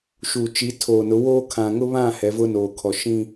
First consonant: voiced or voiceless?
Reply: voiceless